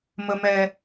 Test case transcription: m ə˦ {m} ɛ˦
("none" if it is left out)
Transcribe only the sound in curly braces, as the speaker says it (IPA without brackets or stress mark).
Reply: m